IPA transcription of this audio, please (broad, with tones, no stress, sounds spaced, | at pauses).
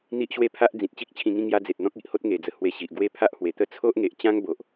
n̪ i˦ ʔ ɕ w e˥˧ pʰ a˦ ʔ d͡z ĩ˨ t̚ t͡ɕ i˦ k̚ t͡ɕʰ ĩ˧ ŋ ĩ˥˧ ŋ j a˦ d͡z e˨ t̚ n̪ ɔ̃˦ k̚ i˨ ʔ h o˦ t̚ ŋ e˨˩ d͡z ə˨˩ h w e˧ ɕ i˨ ʔ ɡ w e˥˧ pʰ a˦ ʔ h w e˨˩ t̪ ə˦ t͡sʰ o˦ ʔ ŋ e˨ ʔ t͡ɕ ã˦ ŋ b o˨ ʔ